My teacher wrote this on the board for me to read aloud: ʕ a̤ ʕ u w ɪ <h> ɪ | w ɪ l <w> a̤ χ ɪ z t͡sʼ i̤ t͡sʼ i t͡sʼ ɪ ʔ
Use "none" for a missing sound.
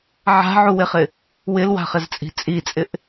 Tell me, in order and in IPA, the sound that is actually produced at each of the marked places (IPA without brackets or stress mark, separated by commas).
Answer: χ, w